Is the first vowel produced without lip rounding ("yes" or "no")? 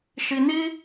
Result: yes